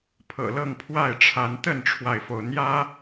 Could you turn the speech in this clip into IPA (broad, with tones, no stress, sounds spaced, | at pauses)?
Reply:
pʰ ɤ̰˨˩ l ɤ˥˨ ŋ pʰ w a˥˨ ɪ̯ ʈ͡ʂʰ a˨˦ n t̪ ə˥˨ n ʈ͡ʂʰ w a˩ ɪ̯ f o˩ ʊ̯ n̪ j ä˦